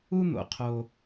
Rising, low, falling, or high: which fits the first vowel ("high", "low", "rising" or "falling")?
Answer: high